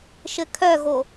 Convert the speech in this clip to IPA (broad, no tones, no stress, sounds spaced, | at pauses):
ʃ ɘ kʰ œ ɣ o